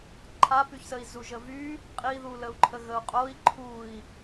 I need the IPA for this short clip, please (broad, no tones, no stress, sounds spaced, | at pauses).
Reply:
ǃʰ a p y ç s ə i̯ z u ʒ ə v y | qʼ i ð u l ə u̯ ǃʰ ə ɣ ə u̯ qʼ o i̯ ǃʰ u i̯